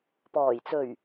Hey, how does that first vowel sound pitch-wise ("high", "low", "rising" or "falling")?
low